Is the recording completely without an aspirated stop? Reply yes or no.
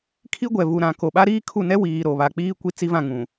no